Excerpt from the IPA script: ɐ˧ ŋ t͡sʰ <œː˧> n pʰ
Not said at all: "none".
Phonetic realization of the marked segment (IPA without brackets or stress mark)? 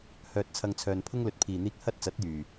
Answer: œː˧